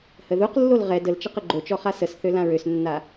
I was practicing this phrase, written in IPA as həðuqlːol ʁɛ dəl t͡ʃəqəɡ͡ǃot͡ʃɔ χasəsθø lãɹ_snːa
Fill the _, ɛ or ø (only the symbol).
ø